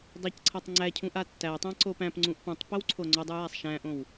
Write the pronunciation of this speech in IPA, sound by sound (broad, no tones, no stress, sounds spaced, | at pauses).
dˤ æ c ǀʰ a tˤ ŋ͡ǀ æ cʰ ũ ʔ a tː æ tˤ æ̃ ǀ o p æ̃ p ŋ͡ǀ ũ ʔ p ũ tˤ p o w ǀʰ o ŋ͡ǀ o dˤ u j æ sˤ ʃ æ̃ ʔ õ w